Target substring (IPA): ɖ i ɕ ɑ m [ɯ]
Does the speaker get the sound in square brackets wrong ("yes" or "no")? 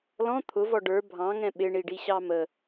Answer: yes